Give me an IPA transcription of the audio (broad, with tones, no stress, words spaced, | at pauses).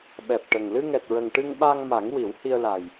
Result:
ɓɛ˨˩p̚ʈə˨˩ŋ lɨ˧ŋɛ˨˩t̚ɹə˨˩ŋ ʈɨ˧ŋɓa˧ŋma˨˩˦ŋ wi˨˩˦whi˧ə̯la˨˩j